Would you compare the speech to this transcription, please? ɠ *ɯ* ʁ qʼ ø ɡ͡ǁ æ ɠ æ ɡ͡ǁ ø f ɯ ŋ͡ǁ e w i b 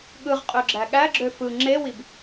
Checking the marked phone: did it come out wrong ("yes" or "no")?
no